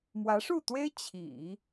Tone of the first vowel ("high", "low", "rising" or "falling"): rising